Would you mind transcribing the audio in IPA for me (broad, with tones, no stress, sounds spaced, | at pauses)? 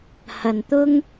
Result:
h ɐ˨ n t̪ ʊ˥ ŋ